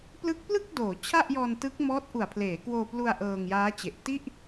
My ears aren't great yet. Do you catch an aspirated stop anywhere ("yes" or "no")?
yes